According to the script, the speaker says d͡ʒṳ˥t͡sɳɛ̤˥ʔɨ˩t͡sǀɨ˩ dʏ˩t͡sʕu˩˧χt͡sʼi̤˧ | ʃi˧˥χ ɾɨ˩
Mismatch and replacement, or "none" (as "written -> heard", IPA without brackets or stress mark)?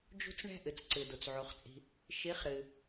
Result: ʏ˩ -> u˩